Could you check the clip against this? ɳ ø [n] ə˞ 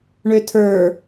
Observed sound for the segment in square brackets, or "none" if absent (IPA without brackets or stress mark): tʰ